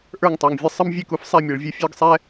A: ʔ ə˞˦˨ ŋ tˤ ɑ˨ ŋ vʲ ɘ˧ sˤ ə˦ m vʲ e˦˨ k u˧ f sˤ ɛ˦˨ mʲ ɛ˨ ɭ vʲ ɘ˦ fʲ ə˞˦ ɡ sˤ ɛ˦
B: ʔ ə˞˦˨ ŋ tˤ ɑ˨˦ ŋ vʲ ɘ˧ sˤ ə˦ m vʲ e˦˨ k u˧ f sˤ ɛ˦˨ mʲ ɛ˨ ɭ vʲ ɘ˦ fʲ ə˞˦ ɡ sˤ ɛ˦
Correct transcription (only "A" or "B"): A